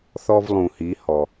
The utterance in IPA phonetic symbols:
θ ɔ˧ v lˠ ũ˩ h i˩˧ h ɔ˩

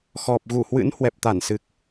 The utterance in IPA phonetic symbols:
x ɔ˨˩ p̚ ɣ u˧˩ h w ɨ̰˧˥ n h w ɛ˨˩ p̚ t̪ a˧˩ n s ɨ˨˩ k̚

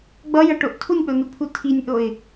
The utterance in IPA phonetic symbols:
ɡ͡b ʌ j ʌ ʈ o ʔ tʰ u nʲ k͡p o n u pʰ u tʰ i nʲ ʔ o ɪ̯

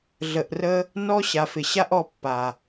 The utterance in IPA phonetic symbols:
ɮ ə˧ ʔ r ə˦ | n ɔ˧ ɕ a˨ f ɪ˨ ɕ a˦ ʔ ɔ˧ pː a˨

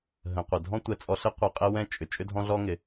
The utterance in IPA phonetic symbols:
ɦ ə̃˩ qʷ ə˩ dʱ ɔ̃˥ tʷ ɛ˧ t͡sʼ ɔ˧ ɬ ɪ˥ qʷ ɤ˧ qʼ ɪ˥ w ɛ̃˥ t͡ʃʼ ʏ˩ t͡ʃʼ ʏ˥ dʱ ɔ̃˥ ɮ ɔ˥ ŋ ɪ˩

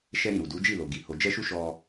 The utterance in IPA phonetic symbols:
ʃ ɛ˧ ɾ ĩ˨ ɾ u˨ d u˨˦ d͡ʒ i˦˨ l o˨ ɡ i˨ h o˨ d͡ʒ ɛ˧ ʃ u˧ ʃ ɔ˧

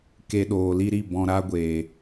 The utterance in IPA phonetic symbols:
k e˧ ɗ oː˨ l i˦ ɾ i˦˨ b ɔ̃˨ ɾ a˧ ɡʷ eː˨

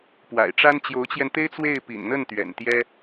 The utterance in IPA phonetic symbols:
p w a̰˨˩ ɪ̯ ʈ͡ʂ a˥ n t͡ɕ j o˧˥ ʊ̯ t͡ɕ j ɛ˧ n t̪ e˥ ɪ̯ t͡s w e˥˩ ɪ̯ p ḭ˨˩ n n̪ ə˥˩ n t̪ ɥ ɛ̰˨˩ n t̪ j ɛ˥

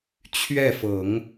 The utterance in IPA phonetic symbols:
t͡ɕʰ ɥ ɛ˥˩ f ɤ˨˩˦ ŋ

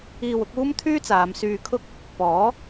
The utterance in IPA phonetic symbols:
iː˧ w ʊ˨˥ k̚ uː˥ m t̪ʰ yː˥ t͡s aː˨˧ m s yː˧ kʰ ʊ˥ k̚ | p ɔː˨˥

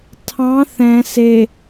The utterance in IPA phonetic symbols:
tʰ ɑ̃ θ ɛ̃ s e

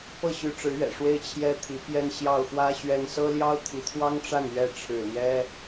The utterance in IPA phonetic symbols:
p ɤ˥˩ ɕ y˧˥ ʈ͡ʂ ɻ̩˧˥ ɥ ɛ̰˨˩ ʂ w e˥˩ ɪ̯ t͡ɕʰ j ɛ˥ t̪ʰ i˧˥ p j ɛ˥˧ n ɕ j ɑ˥˩ ʊ̯ x w ä˥ ɕ ɥ ɛ˥ n s ɤ˥ l j ɑ˥ ʊ̯ t̪ʰ i˧˥ t̪ʰ w ɑ˥ ŋ ʈ͡ʂ a˥˩ n ɥ ɛ˥ ʈ͡ʂʰ ɻ̩˥˩ l j ɛ˥

